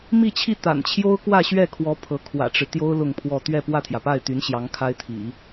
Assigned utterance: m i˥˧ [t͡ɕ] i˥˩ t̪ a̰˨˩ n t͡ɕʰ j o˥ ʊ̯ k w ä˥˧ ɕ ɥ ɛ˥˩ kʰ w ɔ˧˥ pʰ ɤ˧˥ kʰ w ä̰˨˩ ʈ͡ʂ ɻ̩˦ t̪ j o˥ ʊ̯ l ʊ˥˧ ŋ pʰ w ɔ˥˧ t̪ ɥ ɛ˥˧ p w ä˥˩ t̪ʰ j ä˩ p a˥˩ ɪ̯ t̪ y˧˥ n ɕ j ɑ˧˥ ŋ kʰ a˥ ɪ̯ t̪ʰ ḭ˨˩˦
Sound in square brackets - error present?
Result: yes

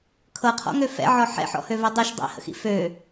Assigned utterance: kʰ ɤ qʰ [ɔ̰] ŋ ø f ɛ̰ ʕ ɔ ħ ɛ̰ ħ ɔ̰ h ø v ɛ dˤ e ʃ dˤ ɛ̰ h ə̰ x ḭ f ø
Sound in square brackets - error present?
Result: no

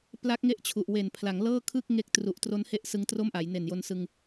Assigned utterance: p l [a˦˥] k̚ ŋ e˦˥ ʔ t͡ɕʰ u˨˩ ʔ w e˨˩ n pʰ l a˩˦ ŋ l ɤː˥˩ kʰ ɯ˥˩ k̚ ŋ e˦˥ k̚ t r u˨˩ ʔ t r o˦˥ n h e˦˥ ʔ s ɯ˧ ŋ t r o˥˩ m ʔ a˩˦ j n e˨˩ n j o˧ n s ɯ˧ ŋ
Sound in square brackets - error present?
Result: no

